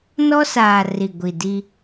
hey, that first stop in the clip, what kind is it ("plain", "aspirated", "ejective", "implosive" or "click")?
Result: plain